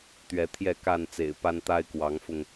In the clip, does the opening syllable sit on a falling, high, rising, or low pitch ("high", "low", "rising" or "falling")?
rising